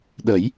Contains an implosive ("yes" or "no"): yes